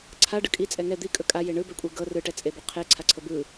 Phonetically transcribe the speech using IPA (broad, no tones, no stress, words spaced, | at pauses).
ǀʰaɖɯ kʼit͡sʼɛ ŋɛ d̪ikʼɵ kʼaje ɳɯbɛkʷʼe ɡɤ rɯʈɛt͡sʼebɵ qʰeǀʰaǀʰɤ bɯ